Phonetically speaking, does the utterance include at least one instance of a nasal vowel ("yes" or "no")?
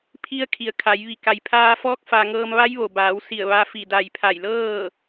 no